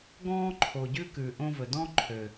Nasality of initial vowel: nasal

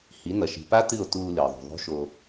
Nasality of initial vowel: oral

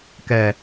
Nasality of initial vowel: oral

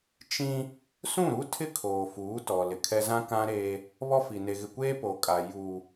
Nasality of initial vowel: nasal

